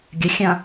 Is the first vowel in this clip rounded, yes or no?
no